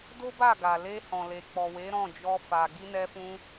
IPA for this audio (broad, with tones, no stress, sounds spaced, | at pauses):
d o˦ b a˦˨ ɡ a˨ l e˧ h ɔ̃˨ l e˨ k͡p ɔ˨ w e˨˦ ɾ ɔ̃˦˨ d͡ʒ ɔ˧ f a˨ ɡ i˧ n ɛ˧ f ũ˧